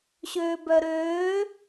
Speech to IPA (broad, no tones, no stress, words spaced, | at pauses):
ɕøːbœɾøː